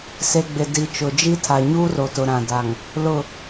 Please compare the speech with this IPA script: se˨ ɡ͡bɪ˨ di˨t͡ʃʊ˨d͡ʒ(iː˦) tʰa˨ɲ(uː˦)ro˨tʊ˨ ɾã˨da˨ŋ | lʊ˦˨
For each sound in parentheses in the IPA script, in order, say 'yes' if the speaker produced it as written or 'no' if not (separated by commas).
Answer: no, yes